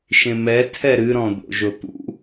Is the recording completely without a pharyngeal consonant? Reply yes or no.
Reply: yes